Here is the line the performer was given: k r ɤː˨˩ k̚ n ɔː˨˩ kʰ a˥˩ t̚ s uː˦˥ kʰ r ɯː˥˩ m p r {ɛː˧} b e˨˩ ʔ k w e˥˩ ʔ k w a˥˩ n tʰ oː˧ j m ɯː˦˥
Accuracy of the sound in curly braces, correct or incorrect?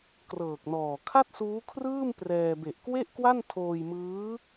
correct